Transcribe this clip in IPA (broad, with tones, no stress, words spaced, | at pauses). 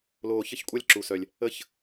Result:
loː˨çə˦˨çkʷʼɐ˦lʲ ǁu˨sœ˨lʲ | ə˦˨ç